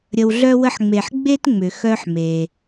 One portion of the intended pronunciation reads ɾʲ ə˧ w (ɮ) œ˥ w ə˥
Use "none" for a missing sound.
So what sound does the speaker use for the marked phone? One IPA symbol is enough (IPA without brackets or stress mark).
ɮ